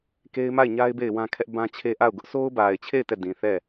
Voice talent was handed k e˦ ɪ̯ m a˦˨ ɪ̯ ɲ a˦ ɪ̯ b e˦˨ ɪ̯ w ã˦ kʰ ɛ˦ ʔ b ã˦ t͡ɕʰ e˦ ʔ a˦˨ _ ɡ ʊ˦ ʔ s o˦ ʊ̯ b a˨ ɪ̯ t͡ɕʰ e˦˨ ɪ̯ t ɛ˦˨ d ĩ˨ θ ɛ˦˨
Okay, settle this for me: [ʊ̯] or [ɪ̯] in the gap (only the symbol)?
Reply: ʊ̯